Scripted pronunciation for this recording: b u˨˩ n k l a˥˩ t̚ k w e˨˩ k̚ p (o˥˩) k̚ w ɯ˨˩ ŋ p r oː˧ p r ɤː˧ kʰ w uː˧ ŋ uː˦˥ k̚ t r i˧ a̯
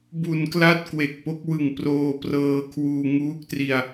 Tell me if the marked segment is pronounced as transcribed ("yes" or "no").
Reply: no